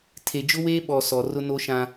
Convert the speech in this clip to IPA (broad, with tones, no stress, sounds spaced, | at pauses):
tʰ e˨ d͡ʒ ʊ˦ w eː˦ ɓ ɔ˨ s ɔ˨ r ʊ˦ n o˦ ʃ ã˦